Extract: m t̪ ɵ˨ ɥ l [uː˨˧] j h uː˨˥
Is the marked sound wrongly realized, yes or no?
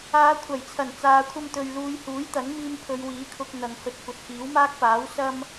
no